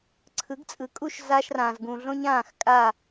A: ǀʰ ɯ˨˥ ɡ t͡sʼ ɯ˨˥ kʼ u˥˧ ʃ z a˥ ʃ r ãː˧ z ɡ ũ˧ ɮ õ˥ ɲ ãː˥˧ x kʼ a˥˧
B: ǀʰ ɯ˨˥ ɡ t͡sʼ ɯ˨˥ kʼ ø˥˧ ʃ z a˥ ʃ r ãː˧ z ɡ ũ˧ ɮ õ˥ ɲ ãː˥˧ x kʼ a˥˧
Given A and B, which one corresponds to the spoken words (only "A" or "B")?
A